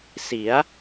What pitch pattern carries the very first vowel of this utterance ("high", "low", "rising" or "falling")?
rising